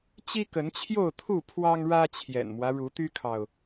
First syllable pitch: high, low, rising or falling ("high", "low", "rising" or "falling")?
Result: high